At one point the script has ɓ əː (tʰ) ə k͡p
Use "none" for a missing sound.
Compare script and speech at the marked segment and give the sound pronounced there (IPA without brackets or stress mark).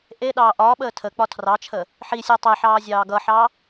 tʰ